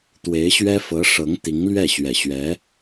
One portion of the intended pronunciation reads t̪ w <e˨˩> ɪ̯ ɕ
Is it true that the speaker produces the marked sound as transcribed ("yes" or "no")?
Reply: no